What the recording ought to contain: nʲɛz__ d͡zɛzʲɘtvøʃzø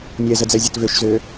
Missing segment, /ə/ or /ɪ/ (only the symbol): ə